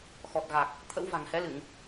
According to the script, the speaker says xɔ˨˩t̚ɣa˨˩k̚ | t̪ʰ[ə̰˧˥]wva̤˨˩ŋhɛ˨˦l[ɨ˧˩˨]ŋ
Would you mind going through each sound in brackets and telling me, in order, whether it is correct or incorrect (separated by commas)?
correct, correct